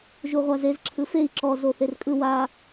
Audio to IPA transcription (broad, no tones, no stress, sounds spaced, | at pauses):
ʒ u ʁʷ a z e z ǁʰ ɯ f e i̯ ǁ ɔ z o θ e r kʼ ɯ w a